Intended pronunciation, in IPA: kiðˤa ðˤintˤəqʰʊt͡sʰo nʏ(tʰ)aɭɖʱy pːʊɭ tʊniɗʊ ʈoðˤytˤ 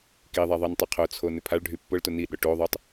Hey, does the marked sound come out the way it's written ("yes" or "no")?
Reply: no